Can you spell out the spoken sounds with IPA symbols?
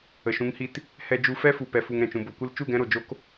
ə˨ʃũ˨˦ŋhi˧t | hɛ˧d͡ʒu˧fɛ˦fu˨ pɛ˨fu˨ŋ ɾɛ̃˨t͡ʃũ˨ bo˨kʷɨ˧l t͡ʃu˦˨ɡɛ̃˧ɾo˨ d͡ʒo˧k

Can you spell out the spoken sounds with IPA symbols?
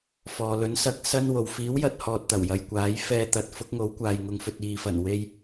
fɔː˨lɵ˨˥n sɐ˧k̚sɐ˥nwo˨w fiː˨˥wjɐ˨t̚ hɔː˧t̚t̪ɐ˨˩wjɐ˨jkʷaː˨˥j fɛː˧t̪ɐ˨˥t̚fʊ˨˥k̚ ŋo˨˥wkʷaː˨j ŋʊ˨ŋfɵ˨t̚ iː˨fɐ˨˩n we˧j

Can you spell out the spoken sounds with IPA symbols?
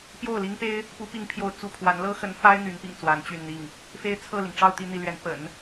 pjo˥˩ʊ̯li˥ŋpe˥ɪ̯ | pu˧˥pi˧˥ŋpʰjo˧˥ʊ̯ t͡sṵ˨˩pʰwa˧˥n lɤ˥xə˧˥nfa˥ɪ̯ n̪y˧˥npḭ˨˩ŋ t͡swa˧˥nt͡ɕy˥˧nn̪i˥˩ŋ | fe˥ɪ̯t͡sʰɤ˥˩li˩ŋ ʈ͡ʂɑ˥˧ʊ̯t̪i˥˧n̪i˥˩lɥɛ˧˥n pə̰˨˩˦n

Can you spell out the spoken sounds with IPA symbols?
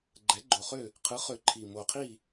ɡ͡ǃɛ˩˥ɡ͡ǃo˨˩χø˥˨ | qʰɯ˩˥χø˨˩ ǃʰi˨˩ mo˨˩qʰi˥˨

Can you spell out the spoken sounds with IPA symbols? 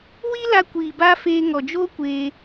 wi˦la˧kʷiː˨ baː˦feː˧ ŋɔ˨d͡ʒoː˦kʷeː˧

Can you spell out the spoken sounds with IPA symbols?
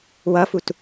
wʌfut

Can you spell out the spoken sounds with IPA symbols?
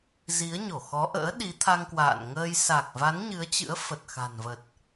zi˨˦ə̯ɲo˧˩xɔ˨˦ʔə̰ː˧˥ ɗi˨˦t̪ʰa˧ŋkwa̰ː˧˨nŋəː˧j sa˨˩k̚va˨˦n ɲɨ˨˦ə̯t͡ɕɨ̰˧˥ə̯ fə˨˩t̚xa̤˨˩nvə˨˩t̚

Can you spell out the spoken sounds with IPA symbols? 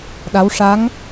ɗa˧˥w ʂa˧˥ŋ

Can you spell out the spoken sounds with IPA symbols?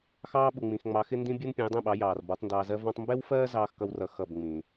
xɑː˥ɓu˩ŋ͡mĩ˩x ŋ͡mɑ˩˥xɪ˥ndĩ˥bʲu˥n pʲɛ̃˩˥jdˤɛ̃˥˩ɓɑ˩˥ jɑː˩r bɔ˩˥tˤndɑː˧ zɜ˥vɔ̃˥tˤ mbɛ˥wfɜː˥ zɑː˥xkʌ˥wrʌ˧ xʌ˥˩b ŋ͡mĩ˩

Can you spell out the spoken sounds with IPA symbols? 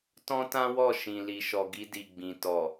tɔ̃˦tã˦wɔ˦˨ ʃĩ˨li˨ʃɔ˨ ɡi˧di˨ɡ͡bĩ˨ tɔ˨

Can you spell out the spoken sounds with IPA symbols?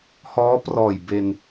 hɔː˦˥prɔː˨˩j be˧n

